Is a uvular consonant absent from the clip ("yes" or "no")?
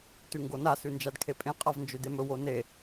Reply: no